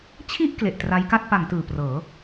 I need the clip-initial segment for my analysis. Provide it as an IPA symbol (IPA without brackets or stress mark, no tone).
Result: t͡ɕʰ